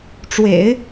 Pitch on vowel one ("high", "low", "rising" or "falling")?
low